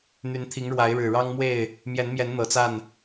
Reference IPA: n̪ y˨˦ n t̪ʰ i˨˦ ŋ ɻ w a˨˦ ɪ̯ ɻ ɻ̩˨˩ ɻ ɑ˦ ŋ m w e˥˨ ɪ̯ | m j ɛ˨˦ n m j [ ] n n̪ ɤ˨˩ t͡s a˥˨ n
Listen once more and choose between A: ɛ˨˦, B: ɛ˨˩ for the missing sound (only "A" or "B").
A